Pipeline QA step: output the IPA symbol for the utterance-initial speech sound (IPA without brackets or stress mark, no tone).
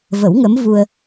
v